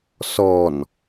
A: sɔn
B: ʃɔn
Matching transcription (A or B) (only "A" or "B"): A